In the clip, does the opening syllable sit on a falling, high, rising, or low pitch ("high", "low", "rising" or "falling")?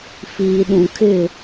low